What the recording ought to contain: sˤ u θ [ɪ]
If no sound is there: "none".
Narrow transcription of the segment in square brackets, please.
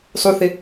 ɪ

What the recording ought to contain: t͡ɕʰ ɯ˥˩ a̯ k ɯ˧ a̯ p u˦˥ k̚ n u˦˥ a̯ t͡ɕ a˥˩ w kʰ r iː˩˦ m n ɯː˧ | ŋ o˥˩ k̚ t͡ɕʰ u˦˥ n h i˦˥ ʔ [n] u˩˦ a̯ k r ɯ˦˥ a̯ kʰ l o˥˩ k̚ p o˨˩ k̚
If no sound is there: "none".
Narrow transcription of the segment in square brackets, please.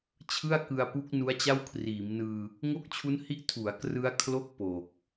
tʰ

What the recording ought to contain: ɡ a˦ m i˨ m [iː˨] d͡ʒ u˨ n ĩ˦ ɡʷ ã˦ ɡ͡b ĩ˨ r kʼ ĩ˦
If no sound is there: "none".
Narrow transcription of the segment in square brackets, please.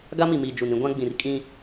iː˨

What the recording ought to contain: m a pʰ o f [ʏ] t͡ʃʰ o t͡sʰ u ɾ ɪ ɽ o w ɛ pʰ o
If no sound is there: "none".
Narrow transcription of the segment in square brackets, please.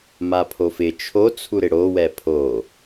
ɪ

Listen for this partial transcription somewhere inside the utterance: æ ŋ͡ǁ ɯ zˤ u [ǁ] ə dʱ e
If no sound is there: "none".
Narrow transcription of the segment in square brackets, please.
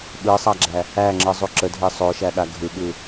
ǁ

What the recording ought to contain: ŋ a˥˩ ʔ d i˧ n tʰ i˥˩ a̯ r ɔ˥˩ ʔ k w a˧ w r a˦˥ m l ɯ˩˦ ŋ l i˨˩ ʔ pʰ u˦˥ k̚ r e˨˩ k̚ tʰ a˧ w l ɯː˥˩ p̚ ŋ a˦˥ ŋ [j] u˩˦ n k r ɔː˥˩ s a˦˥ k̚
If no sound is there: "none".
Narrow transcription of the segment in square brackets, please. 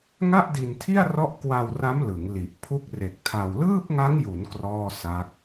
j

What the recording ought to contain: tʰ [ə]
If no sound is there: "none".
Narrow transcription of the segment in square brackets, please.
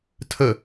ə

